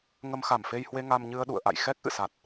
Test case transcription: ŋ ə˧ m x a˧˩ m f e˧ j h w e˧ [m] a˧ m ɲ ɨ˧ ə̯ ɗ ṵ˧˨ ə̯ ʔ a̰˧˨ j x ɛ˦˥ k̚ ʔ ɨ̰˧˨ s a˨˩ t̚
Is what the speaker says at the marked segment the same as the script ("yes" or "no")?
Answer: no